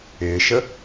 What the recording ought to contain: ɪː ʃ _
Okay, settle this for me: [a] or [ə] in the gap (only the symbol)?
ə